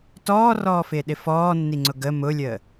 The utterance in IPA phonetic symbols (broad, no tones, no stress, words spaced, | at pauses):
tɔːrɔːfɪːɗɪ fɔːnːiŋ͡ǀʊ ɡə mʊlʲəː